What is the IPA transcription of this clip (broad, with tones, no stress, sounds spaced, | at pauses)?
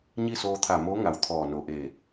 ɲ i˥˨ s oː˧ t̪ʰ a˧˩ m oː˧˥ ŋ a˧˩ w t̪ʰ ɔː˧˩ n o˧˩ ʔ e˧˩